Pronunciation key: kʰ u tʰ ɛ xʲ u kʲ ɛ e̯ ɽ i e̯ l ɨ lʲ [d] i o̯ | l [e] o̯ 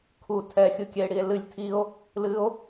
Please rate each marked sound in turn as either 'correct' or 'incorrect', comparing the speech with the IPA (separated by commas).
incorrect, incorrect